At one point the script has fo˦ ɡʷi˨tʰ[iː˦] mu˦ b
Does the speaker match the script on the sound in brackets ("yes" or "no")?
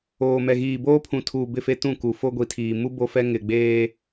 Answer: no